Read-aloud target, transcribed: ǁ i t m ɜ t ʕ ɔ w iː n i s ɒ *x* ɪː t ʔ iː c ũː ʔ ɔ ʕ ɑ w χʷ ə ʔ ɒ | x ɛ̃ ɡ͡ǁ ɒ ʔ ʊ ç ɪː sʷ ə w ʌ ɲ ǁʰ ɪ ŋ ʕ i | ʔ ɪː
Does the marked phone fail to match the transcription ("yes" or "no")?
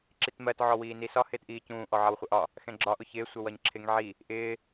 yes